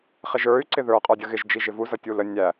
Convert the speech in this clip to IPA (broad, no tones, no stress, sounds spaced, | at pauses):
χ ɪ ʒ ə˞ y̯ ǀ ɪ ð ə˞ qʼ ə˞ dʲ ə ɣ ɪ ʒ d͡ʒ i ʒ ɪ v u z ʌ tʲ u l ə nʲ æ